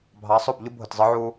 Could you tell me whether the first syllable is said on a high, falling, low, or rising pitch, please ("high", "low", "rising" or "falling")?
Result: rising